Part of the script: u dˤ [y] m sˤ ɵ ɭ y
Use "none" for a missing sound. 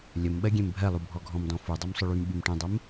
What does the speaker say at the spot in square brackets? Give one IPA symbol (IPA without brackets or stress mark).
u